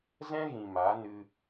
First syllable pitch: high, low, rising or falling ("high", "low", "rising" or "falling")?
high